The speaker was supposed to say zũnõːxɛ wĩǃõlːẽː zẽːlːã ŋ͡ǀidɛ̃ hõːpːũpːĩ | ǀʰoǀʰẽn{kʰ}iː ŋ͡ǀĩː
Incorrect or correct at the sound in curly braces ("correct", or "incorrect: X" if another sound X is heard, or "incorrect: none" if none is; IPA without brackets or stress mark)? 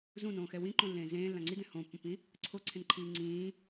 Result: incorrect: ǃʰ